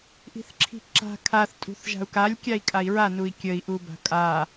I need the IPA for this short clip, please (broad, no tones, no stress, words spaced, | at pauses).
ʔi̤θǁʰi̤ǁa̤ kʰaθtʼṳθʒa̤u̯ kalʲ kʲai̯kʼai̯ɹanui̯ kʲəi̯ʔu ba̤kʼa